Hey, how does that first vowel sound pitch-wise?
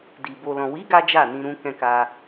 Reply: low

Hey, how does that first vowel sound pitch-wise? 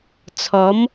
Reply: rising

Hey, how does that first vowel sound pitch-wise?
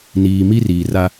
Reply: low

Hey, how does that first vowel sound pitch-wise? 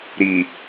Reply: low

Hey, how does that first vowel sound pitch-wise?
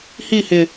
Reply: falling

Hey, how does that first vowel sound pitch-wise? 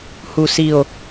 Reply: low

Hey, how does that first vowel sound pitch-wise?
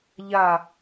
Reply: falling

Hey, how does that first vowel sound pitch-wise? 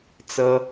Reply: high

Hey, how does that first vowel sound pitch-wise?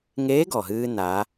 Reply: rising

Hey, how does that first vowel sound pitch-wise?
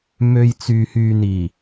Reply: low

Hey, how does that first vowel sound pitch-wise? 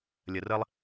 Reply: low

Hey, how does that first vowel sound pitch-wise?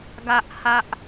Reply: high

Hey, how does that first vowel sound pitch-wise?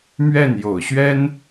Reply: falling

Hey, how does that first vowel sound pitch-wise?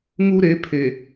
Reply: high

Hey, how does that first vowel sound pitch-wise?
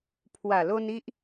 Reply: low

